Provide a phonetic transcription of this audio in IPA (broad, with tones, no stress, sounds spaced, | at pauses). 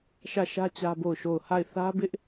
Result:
ʃ ä˦˨ ʃ ä˦ t͡ɕ ä˦ b o˦˨ ʊ̯ ʃ o˦˨ ʊ̯ h a˦˨ ɪ̯ θ ä˦ b ɪ˦ ʔ